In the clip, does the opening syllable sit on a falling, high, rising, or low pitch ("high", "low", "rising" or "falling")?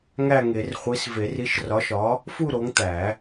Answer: falling